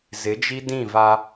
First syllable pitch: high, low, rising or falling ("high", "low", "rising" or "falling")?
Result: rising